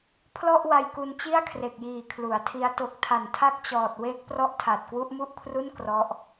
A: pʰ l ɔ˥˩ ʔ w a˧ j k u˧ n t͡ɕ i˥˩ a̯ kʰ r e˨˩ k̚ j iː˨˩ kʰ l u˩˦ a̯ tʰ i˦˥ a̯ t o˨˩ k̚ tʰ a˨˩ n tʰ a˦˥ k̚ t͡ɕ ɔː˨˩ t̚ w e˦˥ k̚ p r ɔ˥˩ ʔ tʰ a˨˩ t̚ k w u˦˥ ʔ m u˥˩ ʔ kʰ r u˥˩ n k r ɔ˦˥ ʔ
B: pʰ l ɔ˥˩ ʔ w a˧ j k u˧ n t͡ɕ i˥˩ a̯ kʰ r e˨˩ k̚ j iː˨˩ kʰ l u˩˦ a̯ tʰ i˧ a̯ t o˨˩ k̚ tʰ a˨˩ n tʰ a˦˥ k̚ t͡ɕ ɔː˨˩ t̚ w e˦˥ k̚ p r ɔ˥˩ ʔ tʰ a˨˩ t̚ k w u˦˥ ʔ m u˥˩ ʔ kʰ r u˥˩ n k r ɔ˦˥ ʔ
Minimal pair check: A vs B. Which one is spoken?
A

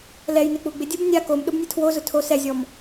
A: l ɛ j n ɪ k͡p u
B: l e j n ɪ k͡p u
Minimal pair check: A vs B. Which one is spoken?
A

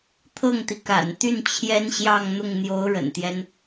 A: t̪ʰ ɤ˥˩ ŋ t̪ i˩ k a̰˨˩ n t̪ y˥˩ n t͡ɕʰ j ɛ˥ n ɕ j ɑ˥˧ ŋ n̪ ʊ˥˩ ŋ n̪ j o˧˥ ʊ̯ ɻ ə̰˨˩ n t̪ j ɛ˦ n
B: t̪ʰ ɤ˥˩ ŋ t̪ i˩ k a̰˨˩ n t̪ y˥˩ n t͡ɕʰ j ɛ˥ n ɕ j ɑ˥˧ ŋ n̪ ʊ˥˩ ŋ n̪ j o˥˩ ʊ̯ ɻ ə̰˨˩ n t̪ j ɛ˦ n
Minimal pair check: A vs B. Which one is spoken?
A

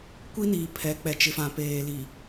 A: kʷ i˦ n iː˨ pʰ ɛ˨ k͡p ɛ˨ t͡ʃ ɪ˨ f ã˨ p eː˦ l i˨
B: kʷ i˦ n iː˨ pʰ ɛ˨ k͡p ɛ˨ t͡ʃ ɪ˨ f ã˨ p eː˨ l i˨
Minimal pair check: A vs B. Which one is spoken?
B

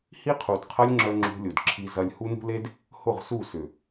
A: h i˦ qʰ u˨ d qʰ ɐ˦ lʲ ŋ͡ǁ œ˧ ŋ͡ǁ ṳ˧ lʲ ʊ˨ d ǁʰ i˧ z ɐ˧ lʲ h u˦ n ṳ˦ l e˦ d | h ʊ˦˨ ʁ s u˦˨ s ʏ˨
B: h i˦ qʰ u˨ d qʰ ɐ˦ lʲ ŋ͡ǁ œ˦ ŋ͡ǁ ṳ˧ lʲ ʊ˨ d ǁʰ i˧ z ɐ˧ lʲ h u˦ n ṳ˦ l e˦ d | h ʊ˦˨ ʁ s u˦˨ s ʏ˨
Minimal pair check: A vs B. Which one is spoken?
A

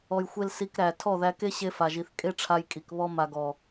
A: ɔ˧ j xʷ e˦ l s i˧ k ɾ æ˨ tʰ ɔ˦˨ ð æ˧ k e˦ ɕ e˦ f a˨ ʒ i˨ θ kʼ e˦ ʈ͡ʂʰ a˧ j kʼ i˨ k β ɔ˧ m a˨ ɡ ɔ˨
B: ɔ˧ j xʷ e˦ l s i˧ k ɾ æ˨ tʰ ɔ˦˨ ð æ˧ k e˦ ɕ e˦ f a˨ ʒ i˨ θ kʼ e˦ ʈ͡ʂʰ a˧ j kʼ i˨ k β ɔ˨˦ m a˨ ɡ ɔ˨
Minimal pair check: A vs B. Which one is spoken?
A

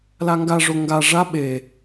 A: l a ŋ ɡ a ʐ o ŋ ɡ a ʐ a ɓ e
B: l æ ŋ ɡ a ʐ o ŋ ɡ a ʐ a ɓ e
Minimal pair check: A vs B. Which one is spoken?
A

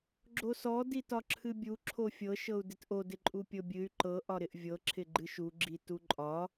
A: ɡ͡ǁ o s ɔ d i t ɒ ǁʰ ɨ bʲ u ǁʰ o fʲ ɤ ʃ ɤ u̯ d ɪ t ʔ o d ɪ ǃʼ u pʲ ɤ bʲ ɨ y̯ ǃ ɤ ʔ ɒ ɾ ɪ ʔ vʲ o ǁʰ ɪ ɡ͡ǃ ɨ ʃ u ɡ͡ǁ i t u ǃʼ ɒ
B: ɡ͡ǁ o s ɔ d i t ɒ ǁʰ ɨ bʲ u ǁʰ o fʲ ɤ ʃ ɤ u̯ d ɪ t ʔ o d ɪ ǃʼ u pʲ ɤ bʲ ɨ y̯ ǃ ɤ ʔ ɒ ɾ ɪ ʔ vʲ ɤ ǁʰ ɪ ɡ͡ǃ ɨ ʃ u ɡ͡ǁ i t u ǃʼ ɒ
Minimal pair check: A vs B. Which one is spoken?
B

